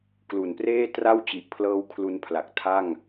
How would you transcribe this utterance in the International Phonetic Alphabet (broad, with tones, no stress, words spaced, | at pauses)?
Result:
klu˨˩npreː˥˩tra˥˩wt͡ɕi˨˩ʔ pʰlɤː˧w kʰlu˧npʰla˨˩k̚ tʰa˥˩ŋ